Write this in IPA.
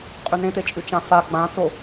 qʼ ʉ n ẽ t̪ e t͡ʃʼ ʉ t͡ʃ ã f a ɡ͡b ã t͡s o

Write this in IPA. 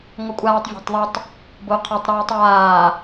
ŋʷ ʌ kʷʼ aː tˤ vʲ ɔ̤ tˤ ðˤ ʌ tˤ | b o qʰ a tˤ ɾ yː tˤ w aː

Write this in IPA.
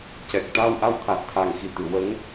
c ɛ˨˩ k̚ t̪ a˧ w ʔ a˧ w t̪ʰ a˨˩ t̚ t̪ʰ a˨˩ ŋ x i˨˩ t̪ ɨ˨˩˨ w ə˧˥ ŋ

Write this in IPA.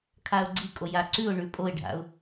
kʰ a ʊ̯ ɡ͡ǀ i kʼ o j a ǀ ʉ ʊ̯ ɳ ʉ pʼ o ɪ̯ ɖʱ a̰ ʊ̯

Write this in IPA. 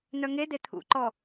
n̪ œ ŋ e d̪ e t̪ʰ ṵ ǃ ɔ

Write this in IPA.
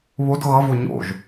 β o d ɣ ʌ v o ɲ o̰ ʒ

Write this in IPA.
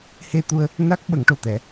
h e˧ t̪ u˧ ə̯ | n a˦˥ k̚ ɓ ə˨˩˦ ŋ ʈ o˨˩ t̪ ɛ˨˩˦

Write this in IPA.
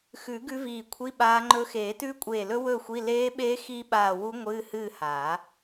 x ʉ˨˩˦ ɡ ʉ˧˥ v iː˧˩ kʷʰ i˧˥˧ ɓ aː˧˥ ŋ͡ǃ ɵ˧˥ x eː˨˩˦ t ʉː˧˥ kʷʼ eː˧˩ l ɵ˧˥ w ɵ˥˨ xʷ i˧˥˧ l eː˧˥ ɓ eː˧˥ x i˧˥ ɓ aː˧˩ w u˧˥ ŋʷ ɨː˧˥˧ h ɨː˥˨ h aː˨˩˦

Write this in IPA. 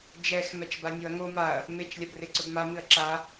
d͡ʒ ɛ x m ɛ t͡ʃ b a nʲ o ɐ̯ ŋ o m a ɐ̯ | m e t͡ʃ lʲ a b r e ǀ ɵ b m a m ɨ ɐ̯ ǁ a

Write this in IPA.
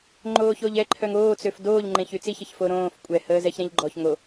ŋ͡ǃ oː ç o ʎ ɛ ǃʰ œ ŋ oː t͡s ø f d oː ʎ ŋ͡ǃ ẽ ç y t͡s i ç ə ç f o ɾ õː f kʷʼ ɛ h əː z ɛ ç ɾ ẽ ʎ ɡ͡ǃ ɔ ç ŋ o

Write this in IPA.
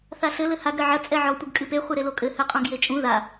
θ a ɬ ɘ l ɘ h a ɡ ɾ ɘ ʕ ɐ t͡sʼ ɛ ʕ ɔ tʷ ɨ ɡ kʼ ɨ p e χʷ e ɾ e l o kʼ ɘ h ɘ qʼ õ ɡ j e t͡ʃʼ ũ ð a

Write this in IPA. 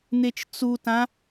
n̪ e t͡ʃ t͡s u t ã

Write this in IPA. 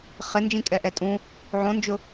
χ ɪ n d͡ʒ ĩ kʼ ɛ ʔ ɛ tʼ ũ | ʕ õ n d͡ʒ ʊ

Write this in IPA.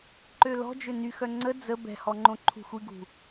ǃ ø l ɔ̤ d͡ʒ ø n y x œ ŋ͡ǀ ə d͡z ə b ɛ̤ h ɔ ŋ͡ǃ õ ǃʰ ṳ xʷ i ɡ ṳ

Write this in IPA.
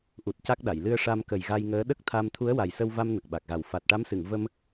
ʔ u˨˩ t̚ c a˦˥ k̚ ɗ a˨˩˨ j l ɨ˧ ə̯ ʂ a˧ m k ə˨˩ j ɣ a˧ j ŋ əː˧˥ ɗ ə˦˥ k̚ t̪ʰ a˧ m t̪ʰ u˧˥ ə̯ w a˨˩ j s ə˧ w v a˧ m n ə˨˩ k̚ ɓ a˨˩ k̚ ɣ a˨˩ w f a˨˩ t̚ ʈ a˧˥ m s ɨ˨˩˨ ŋ v ə˧ m

